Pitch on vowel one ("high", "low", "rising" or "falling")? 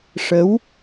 rising